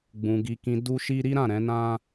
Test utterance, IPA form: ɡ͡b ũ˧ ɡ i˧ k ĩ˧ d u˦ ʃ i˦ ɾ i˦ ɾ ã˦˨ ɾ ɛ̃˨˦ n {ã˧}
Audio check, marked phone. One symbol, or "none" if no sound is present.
ã˦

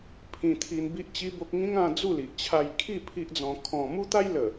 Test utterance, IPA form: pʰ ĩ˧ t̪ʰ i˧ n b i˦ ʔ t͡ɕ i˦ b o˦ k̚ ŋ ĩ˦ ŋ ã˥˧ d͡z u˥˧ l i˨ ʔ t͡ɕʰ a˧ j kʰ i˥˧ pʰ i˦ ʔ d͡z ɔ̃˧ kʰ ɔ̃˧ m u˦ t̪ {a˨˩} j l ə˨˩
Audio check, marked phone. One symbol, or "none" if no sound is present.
a˦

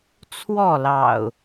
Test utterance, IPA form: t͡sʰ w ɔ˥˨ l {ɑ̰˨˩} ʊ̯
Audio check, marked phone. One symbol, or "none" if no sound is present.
ɑ̰˨˩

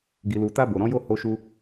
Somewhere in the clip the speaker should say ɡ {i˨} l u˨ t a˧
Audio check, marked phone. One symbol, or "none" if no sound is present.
i˨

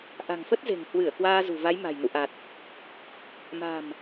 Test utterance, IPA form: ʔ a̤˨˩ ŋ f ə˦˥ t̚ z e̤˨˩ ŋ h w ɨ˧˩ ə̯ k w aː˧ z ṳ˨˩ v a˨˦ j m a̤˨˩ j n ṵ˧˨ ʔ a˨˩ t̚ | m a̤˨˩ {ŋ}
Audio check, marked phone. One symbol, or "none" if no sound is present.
m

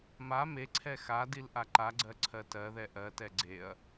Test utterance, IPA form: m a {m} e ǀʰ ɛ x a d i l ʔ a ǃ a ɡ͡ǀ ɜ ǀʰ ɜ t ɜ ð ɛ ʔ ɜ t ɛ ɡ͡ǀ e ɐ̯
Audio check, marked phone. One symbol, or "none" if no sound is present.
m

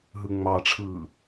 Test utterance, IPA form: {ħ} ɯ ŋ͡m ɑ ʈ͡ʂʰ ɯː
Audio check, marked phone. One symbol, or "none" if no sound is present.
ɦ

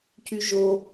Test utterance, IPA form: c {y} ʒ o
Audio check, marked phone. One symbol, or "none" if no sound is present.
y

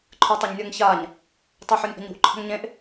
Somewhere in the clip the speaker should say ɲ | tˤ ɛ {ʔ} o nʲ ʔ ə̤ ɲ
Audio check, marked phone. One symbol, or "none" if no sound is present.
ħ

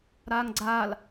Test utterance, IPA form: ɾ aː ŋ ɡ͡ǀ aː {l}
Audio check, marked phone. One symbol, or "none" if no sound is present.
l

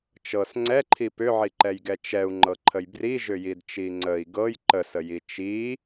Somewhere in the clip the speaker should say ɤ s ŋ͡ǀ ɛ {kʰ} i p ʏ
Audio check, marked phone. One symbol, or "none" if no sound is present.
ǃʰ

